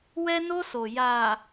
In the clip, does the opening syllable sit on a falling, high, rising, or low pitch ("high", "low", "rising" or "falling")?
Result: high